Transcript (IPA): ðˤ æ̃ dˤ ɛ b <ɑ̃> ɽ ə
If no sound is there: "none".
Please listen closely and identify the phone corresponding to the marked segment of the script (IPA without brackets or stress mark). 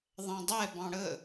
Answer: ɑ̃